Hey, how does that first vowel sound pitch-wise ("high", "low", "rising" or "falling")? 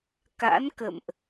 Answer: rising